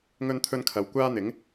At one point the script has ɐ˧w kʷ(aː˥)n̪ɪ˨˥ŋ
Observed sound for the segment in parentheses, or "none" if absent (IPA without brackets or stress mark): aː˥